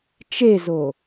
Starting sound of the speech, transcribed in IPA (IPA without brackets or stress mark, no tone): t͡ʃ